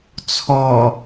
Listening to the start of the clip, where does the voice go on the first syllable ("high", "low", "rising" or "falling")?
low